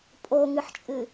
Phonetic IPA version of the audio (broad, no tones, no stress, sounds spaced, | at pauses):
pʼ o ŋ ɨ ħ t͡ʃʼ ɨ